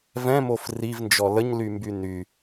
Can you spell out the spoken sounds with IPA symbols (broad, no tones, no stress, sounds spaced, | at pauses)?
v ɛ̃ m o f r i v n d͡ʒ ɔ l ə ɲ l y m b y n y